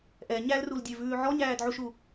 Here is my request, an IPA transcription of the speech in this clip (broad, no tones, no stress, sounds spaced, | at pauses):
ʔ ɛ ɲ æ l r u l dʲ ø v ʉː ʕ ɔ ɲ æː d ʕ u ʃ u